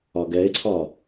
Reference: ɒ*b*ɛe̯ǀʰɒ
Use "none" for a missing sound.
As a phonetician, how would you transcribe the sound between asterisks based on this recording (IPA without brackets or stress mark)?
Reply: ɡ